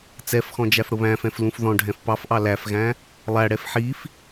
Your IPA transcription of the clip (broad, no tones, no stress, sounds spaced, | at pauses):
t͡s ɛ f x ɔ̃ d͡ʒ æ f ɽ ʊ β æ̃ f ɛ̃ f l ũ f ð ɔ̃ ɖʱ ɛ̃ f p ɑ f ʔ ɑ l æ f ɣ æ̃ | lˠ æ ɽ ɛ f ħ i f